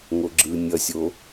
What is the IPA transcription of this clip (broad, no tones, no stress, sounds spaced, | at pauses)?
ŋ o ɡ͡ǁ ɯ nʲ ʌ sʲ o